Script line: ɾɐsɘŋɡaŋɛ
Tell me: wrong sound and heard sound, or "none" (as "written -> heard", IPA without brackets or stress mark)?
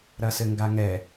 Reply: none